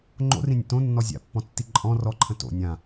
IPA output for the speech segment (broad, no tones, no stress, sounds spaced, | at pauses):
ŋ͡ǃ o̰ r ĩ nʲ ə̰ t õ nː ɔ zʲ a̰ pː ɔ̃ tː i ǃʼ ɔ̃ r ɔ ǃʰ ə̃ t o̰ nʲ ã